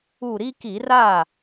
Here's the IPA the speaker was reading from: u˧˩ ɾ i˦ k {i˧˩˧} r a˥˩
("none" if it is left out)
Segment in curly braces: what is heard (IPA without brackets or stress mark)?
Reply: i˧˩˧